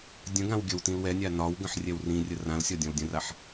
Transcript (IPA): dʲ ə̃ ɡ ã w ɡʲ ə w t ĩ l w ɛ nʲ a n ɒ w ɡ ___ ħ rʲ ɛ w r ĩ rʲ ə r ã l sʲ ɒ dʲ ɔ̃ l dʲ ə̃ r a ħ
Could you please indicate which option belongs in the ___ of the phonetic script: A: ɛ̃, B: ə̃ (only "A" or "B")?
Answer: B